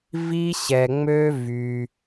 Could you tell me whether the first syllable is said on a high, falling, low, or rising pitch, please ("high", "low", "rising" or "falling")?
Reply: high